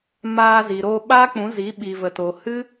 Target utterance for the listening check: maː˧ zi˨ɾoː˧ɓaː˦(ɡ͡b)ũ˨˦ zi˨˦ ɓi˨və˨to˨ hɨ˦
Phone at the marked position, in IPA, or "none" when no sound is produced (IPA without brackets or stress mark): k͡p